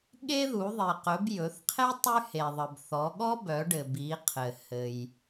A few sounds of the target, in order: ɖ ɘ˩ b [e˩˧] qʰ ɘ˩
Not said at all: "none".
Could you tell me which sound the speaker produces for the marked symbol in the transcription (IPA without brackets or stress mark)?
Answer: i˩˧